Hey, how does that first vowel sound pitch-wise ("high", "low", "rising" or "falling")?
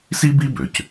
high